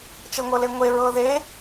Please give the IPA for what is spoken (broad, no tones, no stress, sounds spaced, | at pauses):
t͡ʃ ɤ ŋʷ ɤ l e ŋʷ e ɹ ɤ ð e